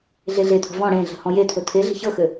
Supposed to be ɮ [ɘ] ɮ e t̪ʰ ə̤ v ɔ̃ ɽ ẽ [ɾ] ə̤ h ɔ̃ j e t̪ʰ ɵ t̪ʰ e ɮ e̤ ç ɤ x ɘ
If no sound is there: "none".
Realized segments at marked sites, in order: e, ɮ

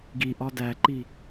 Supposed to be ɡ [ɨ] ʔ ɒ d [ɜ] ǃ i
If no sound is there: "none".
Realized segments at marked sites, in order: i, æ

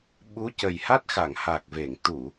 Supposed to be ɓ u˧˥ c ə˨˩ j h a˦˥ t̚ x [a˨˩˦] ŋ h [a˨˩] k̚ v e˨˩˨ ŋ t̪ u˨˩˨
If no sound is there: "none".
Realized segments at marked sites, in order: a˨˩˨, a˨˩

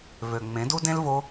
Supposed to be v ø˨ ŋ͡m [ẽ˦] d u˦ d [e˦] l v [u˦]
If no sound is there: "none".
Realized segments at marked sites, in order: ẽ˨˦, ẽ˦, o˦

